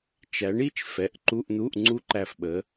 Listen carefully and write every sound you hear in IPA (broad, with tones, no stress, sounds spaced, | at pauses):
t͡ʃ æ˨˥ ɳ i˧˥˧ t͡ʃ f ɛ˩˧˩ ʔ ǃ u˧˥˧ ʔ n̪ u˧˥˧ ʔ ŋ͡ǀ u˦˥ ǃ æ˦˨ f ɓ ə˨˥